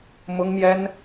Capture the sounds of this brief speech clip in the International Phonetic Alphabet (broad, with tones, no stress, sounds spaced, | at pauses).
m ʊ˥ ŋ m j ɛ˥ n